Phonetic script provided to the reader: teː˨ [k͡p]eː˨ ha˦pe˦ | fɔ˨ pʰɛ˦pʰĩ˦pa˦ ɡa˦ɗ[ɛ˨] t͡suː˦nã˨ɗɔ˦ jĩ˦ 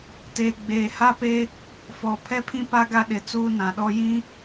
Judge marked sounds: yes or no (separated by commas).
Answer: no, no